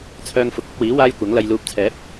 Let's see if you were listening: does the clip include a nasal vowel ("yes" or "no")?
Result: no